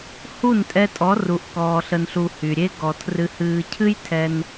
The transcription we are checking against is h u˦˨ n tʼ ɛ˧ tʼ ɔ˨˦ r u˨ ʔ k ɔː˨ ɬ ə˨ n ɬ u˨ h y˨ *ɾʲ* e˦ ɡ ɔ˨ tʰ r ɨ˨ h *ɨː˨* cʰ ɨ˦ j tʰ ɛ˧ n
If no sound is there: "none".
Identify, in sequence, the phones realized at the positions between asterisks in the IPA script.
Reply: ɾʲ, ɨː˨

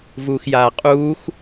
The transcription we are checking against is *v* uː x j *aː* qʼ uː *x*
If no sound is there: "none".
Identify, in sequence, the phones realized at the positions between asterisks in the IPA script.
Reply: v, aː, x

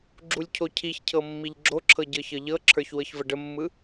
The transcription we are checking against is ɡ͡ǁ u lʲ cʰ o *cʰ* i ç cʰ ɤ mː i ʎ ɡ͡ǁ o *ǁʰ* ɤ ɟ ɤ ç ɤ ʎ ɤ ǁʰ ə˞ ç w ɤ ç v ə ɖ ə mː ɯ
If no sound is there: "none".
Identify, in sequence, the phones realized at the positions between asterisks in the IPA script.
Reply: cʰ, ǁʰ

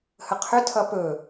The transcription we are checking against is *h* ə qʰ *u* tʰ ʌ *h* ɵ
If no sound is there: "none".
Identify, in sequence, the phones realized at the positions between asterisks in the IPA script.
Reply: h, ʏ, p

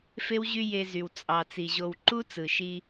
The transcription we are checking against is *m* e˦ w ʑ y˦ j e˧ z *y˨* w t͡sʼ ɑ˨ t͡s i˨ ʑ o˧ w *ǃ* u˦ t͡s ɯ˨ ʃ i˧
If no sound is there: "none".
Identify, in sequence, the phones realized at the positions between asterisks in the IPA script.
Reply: f, y˨, ǃ

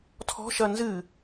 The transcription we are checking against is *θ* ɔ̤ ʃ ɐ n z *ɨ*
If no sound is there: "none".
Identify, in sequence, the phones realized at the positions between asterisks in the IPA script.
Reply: tʰ, ɨ

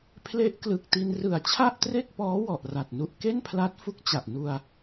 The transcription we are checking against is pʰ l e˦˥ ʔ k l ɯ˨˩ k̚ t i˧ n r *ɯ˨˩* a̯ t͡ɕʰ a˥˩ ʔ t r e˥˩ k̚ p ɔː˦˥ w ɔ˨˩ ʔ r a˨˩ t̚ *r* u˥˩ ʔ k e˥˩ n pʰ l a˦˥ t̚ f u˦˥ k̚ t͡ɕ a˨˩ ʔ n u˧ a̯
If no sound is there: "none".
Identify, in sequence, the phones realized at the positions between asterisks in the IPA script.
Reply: ɯ˨˩, n

